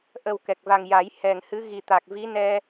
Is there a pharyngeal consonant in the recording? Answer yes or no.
no